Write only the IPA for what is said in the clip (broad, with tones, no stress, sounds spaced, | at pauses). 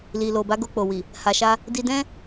l i˨ l o˨ b a˨˦ ɡ o˧ k͡p o˨ w i˨ | h a˨ ʃ a˧ | d i˧ d ɛ̃˦